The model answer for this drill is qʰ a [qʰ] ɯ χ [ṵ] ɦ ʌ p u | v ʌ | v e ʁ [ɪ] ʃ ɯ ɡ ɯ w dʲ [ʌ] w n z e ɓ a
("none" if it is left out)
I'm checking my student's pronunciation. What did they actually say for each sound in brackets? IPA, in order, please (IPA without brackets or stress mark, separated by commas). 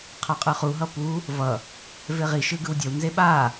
qʼ, u, i, ʌ